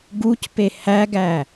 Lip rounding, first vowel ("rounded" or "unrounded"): rounded